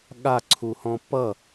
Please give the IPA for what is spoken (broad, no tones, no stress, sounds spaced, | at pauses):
ɠ a ǀʰ u h ɔ̃ p ʌ